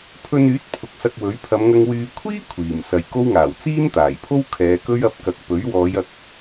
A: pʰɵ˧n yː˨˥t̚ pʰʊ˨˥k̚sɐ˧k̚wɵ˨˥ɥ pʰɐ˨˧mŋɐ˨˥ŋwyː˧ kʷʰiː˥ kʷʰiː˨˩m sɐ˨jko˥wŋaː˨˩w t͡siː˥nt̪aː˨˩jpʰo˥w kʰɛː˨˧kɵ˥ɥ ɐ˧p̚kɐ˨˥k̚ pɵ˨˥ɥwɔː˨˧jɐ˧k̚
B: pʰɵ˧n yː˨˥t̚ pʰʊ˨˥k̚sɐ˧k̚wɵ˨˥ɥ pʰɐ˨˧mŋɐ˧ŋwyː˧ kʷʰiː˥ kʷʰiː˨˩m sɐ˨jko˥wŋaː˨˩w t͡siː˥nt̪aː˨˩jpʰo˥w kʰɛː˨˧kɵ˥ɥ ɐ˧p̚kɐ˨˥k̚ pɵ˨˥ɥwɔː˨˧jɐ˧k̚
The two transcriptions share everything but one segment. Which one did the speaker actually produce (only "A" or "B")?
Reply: B